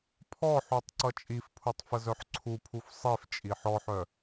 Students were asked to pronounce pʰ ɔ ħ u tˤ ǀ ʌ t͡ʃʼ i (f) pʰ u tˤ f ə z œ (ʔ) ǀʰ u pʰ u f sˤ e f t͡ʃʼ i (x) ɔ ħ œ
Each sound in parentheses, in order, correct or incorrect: correct, incorrect, incorrect

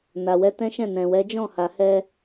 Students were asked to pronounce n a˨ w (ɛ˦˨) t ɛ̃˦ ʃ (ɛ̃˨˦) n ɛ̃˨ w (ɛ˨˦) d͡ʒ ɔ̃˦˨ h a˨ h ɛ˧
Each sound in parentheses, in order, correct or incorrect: incorrect, incorrect, correct

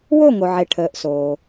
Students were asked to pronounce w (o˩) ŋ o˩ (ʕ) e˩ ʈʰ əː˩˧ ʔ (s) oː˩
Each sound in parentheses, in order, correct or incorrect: incorrect, correct, correct

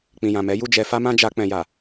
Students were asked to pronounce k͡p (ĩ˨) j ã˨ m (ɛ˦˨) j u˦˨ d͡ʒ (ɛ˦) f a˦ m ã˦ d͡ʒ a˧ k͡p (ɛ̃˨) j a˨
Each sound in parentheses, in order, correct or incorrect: correct, incorrect, incorrect, correct

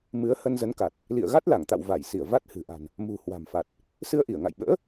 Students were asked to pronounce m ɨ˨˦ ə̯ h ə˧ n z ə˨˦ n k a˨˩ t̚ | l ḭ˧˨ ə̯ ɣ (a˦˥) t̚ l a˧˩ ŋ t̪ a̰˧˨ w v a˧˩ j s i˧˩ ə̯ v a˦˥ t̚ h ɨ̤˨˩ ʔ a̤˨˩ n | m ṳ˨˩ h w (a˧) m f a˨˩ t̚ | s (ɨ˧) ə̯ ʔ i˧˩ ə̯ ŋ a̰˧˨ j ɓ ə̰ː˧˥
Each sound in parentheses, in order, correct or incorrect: correct, incorrect, correct

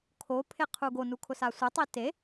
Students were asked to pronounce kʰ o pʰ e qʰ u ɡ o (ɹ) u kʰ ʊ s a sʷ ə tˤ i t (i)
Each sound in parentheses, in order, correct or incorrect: incorrect, incorrect

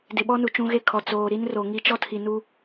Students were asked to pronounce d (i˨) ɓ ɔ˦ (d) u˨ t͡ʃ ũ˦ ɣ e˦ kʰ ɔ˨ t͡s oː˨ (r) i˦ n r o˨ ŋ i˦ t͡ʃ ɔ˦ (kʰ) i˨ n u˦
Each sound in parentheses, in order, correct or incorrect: incorrect, incorrect, incorrect, incorrect

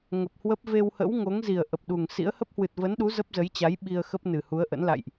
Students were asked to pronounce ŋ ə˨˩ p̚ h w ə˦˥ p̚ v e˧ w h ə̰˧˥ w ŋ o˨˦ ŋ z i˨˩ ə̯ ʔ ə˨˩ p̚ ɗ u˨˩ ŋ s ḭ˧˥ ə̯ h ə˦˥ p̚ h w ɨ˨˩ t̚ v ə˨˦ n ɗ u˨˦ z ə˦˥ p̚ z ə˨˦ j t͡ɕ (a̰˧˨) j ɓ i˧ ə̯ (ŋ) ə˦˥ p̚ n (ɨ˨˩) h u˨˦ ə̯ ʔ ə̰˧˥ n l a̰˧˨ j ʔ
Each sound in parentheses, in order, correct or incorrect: incorrect, incorrect, correct

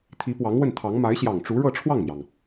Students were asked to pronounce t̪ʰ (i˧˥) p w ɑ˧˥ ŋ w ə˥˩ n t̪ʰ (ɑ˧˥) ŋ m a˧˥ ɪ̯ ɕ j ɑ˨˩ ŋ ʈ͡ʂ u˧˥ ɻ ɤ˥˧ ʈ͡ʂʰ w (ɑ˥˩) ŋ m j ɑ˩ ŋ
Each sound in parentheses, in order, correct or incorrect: correct, correct, correct

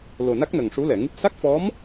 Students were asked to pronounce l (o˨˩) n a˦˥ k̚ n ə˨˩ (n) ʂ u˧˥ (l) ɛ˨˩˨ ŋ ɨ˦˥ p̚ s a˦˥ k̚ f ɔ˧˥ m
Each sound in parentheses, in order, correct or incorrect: correct, incorrect, correct

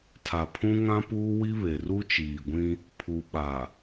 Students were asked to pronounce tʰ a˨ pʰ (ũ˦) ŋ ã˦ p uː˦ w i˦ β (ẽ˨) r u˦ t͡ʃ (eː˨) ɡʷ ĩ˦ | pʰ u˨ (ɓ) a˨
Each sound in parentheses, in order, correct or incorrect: correct, incorrect, incorrect, correct

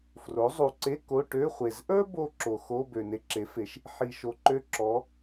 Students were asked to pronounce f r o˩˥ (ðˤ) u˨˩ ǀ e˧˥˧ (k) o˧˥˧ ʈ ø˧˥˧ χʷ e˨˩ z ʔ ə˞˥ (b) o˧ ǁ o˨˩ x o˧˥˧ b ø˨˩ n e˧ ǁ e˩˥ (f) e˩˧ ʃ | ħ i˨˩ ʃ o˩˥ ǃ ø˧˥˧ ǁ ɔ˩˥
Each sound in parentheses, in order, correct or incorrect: incorrect, correct, correct, correct

